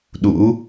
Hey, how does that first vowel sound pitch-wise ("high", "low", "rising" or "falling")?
rising